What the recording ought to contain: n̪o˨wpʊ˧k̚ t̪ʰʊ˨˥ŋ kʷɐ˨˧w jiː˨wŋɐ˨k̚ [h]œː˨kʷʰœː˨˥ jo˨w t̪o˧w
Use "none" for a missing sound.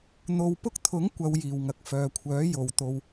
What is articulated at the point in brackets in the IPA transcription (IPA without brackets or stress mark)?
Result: f